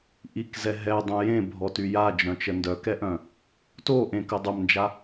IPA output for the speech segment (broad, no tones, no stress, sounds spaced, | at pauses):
ʔ i k z ɛ ɦ ɛ dˤ õ j ẽ bʱ ɔ t y j a d͡ʒ œ̃ t͡ʃ ə n d œ k ɛ ʔ œ̃ | t o ʔ ẽ k ə dˤ œ m n d͡ʒ a